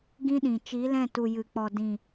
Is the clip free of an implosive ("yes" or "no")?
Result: no